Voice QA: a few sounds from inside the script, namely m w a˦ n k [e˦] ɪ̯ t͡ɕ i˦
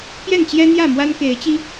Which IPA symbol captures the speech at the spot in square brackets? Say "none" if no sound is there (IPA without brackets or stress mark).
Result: e˨˦